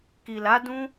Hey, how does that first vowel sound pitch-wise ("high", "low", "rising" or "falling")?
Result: low